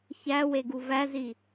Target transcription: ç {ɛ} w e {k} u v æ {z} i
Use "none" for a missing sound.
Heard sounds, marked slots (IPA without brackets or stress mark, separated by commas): æ, ɡ, z